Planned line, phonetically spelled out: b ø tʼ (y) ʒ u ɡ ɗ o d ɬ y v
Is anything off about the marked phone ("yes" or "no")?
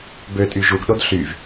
no